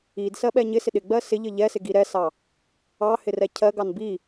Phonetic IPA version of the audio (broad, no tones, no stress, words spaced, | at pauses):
id sɜɓɛɲɪsɪ ɗɪɡ͡bɜ sɪʎə ʎɛsɪ ɡiɾɛsɑ | ɑ hɪrɛcʰɜɡɑn bi